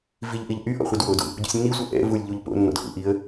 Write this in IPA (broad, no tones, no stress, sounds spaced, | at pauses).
v i ʎ ʔ i ʎ ʔ y ʔ ɔ̰ χʷ i d w o d ṵ | ɟ ṵ sʲ nː i sʷ ɛ ʔ ɛ̰ v u lʲ ʎ u ʎ p o̰ nː ɔ̰ d x ṵ ʔ i ə̯